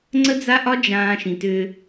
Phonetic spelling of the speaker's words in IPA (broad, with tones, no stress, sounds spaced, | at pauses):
ŋ͡ǀ ə˦ d͡z a˦ ʔ ɒ˦ d͡ʒ ãː˧ ʃ ĩ˨ t ʏː˧